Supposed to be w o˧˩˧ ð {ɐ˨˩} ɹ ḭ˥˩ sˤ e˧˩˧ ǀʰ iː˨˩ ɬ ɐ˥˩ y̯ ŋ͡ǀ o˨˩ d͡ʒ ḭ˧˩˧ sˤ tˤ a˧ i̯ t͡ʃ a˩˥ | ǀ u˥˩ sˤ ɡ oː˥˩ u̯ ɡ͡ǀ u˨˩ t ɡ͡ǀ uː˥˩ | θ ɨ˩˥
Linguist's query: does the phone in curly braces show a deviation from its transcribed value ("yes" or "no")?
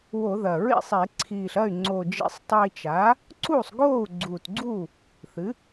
no